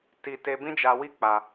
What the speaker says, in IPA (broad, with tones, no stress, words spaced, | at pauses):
ti˧ te˧bĩ˦d͡ʒa˧wi˦ k͡pa˧